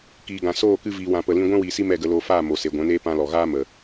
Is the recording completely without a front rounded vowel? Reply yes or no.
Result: yes